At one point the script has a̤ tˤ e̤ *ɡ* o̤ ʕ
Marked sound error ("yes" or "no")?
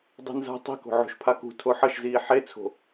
yes